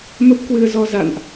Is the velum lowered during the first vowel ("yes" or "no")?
no